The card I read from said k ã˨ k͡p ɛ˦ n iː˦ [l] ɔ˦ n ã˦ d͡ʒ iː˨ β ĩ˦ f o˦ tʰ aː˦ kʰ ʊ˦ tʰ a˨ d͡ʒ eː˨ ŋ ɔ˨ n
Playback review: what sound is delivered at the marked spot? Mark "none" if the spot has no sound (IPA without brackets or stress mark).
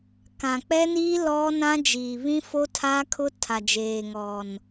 l